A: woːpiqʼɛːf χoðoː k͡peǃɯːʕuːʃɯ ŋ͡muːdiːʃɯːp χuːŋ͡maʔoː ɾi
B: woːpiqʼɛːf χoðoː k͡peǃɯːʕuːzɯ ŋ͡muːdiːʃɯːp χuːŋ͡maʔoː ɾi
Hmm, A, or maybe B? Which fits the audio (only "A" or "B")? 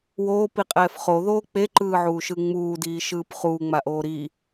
A